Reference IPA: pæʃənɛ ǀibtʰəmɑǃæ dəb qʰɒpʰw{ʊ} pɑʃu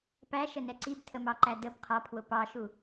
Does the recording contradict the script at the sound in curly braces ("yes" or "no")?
no